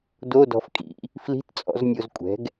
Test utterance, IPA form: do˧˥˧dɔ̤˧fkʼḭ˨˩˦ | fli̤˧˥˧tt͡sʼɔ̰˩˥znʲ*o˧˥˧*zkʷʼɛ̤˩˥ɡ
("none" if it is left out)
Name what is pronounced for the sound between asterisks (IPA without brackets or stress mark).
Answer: o˧